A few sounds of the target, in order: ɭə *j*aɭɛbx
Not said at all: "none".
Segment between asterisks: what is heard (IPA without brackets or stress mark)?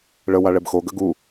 w